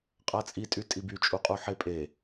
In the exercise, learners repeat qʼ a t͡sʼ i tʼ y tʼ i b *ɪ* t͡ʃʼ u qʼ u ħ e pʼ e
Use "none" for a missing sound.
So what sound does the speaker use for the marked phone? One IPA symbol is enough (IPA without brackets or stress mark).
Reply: y